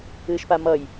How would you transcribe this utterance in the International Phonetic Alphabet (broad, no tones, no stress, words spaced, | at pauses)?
ɨːʃpamʌj